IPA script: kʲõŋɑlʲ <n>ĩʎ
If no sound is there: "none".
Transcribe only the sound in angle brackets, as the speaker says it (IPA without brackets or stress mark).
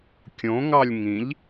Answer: ŋ